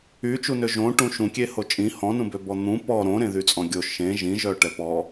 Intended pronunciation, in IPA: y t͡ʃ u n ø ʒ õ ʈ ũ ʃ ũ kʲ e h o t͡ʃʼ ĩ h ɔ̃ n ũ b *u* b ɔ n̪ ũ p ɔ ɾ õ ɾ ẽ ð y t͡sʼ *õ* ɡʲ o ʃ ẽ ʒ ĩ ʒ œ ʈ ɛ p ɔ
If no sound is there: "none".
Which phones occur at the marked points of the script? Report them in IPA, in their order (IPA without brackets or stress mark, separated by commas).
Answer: ø, ɔ̃